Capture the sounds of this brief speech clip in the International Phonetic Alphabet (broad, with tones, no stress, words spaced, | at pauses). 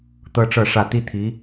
t̪ɤ˥ʈ͡ʂɤ˥˧ʂä˥˩ t̪i˥t̪ʰi˧˥